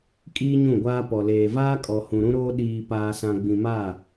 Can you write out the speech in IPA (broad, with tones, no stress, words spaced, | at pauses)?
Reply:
kʼiː˦ɲũ˦˨ɡʷaː˦pɔ˨ leː˨vaː˦kʼɔ˨hũ˨ ɾũ˦ɾoː˦ ɗiː˨ paː˨sã˨ ɡ͡bĩ˨ma˦˨